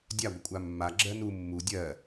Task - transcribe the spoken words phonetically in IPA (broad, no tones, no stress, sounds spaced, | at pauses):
dʲ a ɡʷ ə kʷʼ a mː a ɡ͡ǁ ɜ n u mː u dʲ ɜ